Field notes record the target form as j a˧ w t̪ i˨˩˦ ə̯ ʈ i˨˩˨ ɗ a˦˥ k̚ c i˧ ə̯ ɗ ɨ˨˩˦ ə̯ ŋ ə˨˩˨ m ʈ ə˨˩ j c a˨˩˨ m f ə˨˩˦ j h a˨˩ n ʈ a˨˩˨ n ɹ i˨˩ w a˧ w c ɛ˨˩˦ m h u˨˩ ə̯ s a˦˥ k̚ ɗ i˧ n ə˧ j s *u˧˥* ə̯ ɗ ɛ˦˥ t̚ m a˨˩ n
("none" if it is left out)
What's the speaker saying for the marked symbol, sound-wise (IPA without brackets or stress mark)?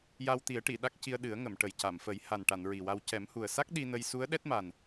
u˧˥